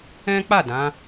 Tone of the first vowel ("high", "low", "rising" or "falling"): high